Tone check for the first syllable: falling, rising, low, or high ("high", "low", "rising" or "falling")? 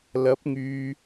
rising